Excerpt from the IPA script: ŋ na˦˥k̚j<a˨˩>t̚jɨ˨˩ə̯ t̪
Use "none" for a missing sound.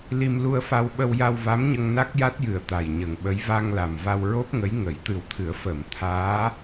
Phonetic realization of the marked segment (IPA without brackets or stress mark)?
a˦˥